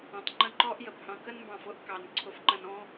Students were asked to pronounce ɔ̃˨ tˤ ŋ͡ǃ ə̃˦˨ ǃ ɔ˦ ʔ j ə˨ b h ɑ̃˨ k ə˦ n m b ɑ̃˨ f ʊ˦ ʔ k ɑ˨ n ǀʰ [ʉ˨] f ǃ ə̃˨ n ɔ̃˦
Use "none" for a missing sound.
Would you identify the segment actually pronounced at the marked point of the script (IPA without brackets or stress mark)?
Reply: ʊ˨